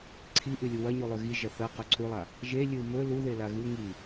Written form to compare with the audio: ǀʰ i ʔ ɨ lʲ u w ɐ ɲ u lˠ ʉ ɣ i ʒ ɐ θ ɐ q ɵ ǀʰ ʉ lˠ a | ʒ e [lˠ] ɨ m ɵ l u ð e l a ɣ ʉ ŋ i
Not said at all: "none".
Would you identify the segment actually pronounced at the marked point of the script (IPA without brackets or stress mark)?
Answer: lʲ